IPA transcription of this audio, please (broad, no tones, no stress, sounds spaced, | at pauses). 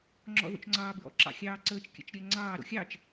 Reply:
ŋ͡ǁ ɔ̰ ð o̰ t͡ʃ ŋ͡ǀ ɑ b ɹ ɔ̰ ǁ ɑ̰ xʲ ɑː ǀ əː t͡ʃ kʲ ə̰ t͡ʃ ɾʲ ɜ ŋ͡ǀ ɑː ɾ o̰ xʲ ɑ t͡ʃ